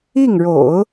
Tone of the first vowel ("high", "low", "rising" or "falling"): falling